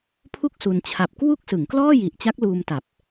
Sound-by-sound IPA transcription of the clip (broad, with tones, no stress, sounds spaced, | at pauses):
pʰ u˥˩ k̚ s u˧ n t͡ɕʰ a˨˩ p̚ k w u˥˩ k̚ s ɯ˩˦ ŋ k l ɔː˥˩ j i˨˩ ʔ t͡ɕ a˦˥ k̚ l uː˧ m t a˨˩ p̚